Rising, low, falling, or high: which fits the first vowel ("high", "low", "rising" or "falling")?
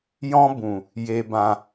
high